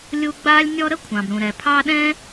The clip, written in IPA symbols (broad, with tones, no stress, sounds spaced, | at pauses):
lʲ u˦ ɡ͡b aː˥ lʲ nʲ ɔ˦ ɾ ə˥ kʷʰ ɑ̃˩ b ɾ ũ˩ ɾ ɛ˩ pʰ ɑ˦ ɗ ɛ̃˥